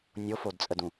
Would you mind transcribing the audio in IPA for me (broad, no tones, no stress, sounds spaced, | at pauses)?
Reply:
nʲ o f o d t͡sʼ ə d ũ